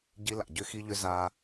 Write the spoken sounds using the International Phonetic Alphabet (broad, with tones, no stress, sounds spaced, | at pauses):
ɟ i˦ l a̰˨ ɟ ʏ˦ x i˦ ʎ ʏ˦ z aː˦